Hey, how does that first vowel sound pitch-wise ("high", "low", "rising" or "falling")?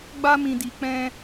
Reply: high